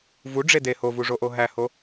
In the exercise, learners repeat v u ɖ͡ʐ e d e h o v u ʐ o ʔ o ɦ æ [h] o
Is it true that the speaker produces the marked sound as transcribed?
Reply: yes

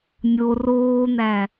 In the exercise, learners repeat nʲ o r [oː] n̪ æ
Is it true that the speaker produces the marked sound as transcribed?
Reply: yes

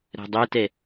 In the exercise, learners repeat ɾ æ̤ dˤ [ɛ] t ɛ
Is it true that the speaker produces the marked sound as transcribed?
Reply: yes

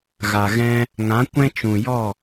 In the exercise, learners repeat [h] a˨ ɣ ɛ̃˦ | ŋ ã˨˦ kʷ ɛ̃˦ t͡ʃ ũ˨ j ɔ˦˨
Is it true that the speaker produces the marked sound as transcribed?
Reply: no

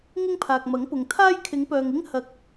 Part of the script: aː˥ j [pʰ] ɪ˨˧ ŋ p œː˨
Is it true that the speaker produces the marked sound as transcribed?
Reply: no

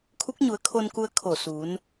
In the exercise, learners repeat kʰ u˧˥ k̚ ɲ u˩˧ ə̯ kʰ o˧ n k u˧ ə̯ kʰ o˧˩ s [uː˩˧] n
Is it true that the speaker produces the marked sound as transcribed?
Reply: yes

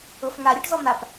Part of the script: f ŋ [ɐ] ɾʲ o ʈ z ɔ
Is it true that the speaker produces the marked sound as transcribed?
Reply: no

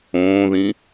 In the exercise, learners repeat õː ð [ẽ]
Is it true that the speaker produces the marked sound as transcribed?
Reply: no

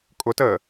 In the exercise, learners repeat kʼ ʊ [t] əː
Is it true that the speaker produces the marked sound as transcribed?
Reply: yes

